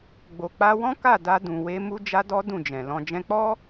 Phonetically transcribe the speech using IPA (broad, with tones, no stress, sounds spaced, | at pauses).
ɡ͡b o˨ k͡p a˧ w ɔ̃˦ k a˦˨ d a˧ d ũ˨ w e˧ m u˦ d͡ʒ a˦ d ɔ˦ d ũ˦˨ d͡ʒ ɛ̃˨ l ɔ̃˧ d͡ʒ ɛ̃˧ k͡p ɔ˦